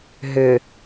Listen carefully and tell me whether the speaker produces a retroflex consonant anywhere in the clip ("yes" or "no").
no